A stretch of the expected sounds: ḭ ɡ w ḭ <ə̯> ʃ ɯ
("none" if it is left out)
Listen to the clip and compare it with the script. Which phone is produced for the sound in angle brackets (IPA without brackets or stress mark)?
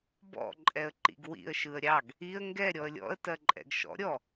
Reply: ə̯